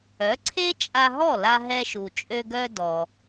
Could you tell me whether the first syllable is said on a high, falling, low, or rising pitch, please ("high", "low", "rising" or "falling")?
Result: rising